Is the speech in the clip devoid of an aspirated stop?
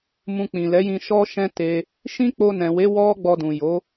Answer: yes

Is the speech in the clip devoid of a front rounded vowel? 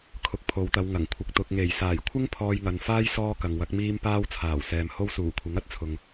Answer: yes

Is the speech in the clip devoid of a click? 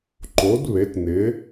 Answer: no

